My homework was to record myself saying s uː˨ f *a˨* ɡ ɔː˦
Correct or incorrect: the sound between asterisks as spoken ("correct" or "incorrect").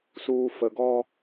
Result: incorrect